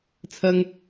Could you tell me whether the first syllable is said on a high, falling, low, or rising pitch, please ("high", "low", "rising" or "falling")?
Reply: high